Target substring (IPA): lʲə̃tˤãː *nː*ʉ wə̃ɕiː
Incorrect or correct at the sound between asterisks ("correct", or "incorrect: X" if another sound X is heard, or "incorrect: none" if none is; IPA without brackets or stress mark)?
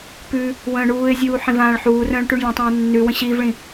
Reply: correct